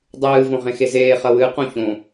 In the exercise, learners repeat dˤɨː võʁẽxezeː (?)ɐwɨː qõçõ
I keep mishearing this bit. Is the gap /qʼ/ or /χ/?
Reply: χ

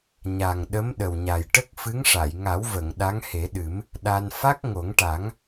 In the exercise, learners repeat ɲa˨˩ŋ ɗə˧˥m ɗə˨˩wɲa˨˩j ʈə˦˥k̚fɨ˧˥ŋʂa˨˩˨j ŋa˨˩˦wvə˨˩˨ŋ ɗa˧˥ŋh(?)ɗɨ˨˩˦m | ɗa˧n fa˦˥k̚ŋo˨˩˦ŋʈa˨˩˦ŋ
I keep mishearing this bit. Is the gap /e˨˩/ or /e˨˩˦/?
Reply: e˨˩˦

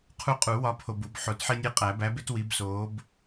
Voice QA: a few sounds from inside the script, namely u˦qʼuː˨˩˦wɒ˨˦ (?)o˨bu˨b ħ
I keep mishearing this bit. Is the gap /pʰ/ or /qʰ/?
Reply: pʰ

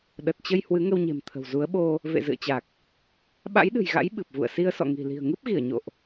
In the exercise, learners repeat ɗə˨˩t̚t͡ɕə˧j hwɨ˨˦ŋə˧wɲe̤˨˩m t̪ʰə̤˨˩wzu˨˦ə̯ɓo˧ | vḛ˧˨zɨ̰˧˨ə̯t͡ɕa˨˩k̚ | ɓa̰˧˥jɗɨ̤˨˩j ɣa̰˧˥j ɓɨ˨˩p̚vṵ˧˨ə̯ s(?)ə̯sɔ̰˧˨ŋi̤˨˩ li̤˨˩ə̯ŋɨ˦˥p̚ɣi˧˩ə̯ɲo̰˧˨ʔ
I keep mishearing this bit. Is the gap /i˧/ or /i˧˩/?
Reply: i˧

